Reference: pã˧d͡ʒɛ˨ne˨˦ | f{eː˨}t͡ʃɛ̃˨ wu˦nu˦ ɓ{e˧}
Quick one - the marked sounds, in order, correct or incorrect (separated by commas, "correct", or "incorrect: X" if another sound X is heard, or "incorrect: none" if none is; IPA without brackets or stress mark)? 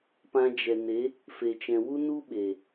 incorrect: e˨, incorrect: e˨